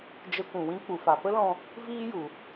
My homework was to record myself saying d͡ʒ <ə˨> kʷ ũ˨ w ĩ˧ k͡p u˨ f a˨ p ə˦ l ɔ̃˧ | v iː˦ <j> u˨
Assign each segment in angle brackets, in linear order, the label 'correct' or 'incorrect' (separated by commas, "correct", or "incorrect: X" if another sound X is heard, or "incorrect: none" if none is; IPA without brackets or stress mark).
incorrect: ə˧, correct